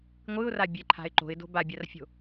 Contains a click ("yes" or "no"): yes